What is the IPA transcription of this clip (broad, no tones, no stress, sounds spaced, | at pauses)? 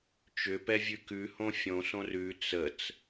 t͡ʃ ʏ p ɛ vʲ ʉ k ʉ h õ fʲ õ s õ r ʉ t͡s ə t͡s